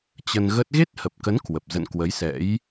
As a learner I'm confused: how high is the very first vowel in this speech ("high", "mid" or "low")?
mid